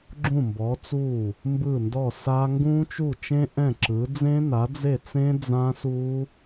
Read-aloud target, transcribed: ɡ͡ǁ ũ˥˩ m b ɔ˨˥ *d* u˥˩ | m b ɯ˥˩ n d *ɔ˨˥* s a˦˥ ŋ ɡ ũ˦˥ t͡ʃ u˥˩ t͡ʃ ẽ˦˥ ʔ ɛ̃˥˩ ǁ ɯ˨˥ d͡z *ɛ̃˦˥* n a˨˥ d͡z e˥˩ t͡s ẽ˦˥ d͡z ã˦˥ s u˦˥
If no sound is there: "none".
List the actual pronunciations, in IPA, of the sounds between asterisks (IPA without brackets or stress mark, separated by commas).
t͡s, ɔ˥˩, ẽ˦˥